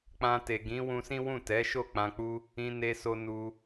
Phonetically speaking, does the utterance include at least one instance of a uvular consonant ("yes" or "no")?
no